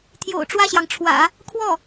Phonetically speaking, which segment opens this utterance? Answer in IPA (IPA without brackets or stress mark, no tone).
t̪ʰ